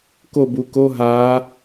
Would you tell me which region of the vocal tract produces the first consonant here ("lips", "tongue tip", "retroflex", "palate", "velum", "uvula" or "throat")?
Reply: velum